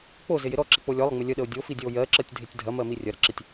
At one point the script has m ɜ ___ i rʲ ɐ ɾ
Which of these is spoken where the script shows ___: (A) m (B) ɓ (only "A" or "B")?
A